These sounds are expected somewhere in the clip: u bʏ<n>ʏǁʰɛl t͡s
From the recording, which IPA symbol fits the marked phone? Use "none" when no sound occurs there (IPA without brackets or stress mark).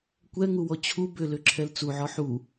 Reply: l